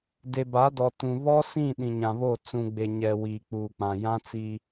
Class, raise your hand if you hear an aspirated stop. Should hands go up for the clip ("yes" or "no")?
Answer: no